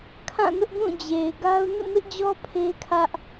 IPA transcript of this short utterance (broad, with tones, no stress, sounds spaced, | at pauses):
kʰ ã˦˨ n ʊ˦ ʔ ɡ ũ˦˨ d͡ʑ e˨ ɪ̯ ɡ a˦ ʊ̯ n ṵ˦˨ m ɪ˦ ʔ d͡ʑ ɔ˦ pʰ e˦ kʰ ä˦ ʔ